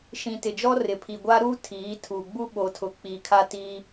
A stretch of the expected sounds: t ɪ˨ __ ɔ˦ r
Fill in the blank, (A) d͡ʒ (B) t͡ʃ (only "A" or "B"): A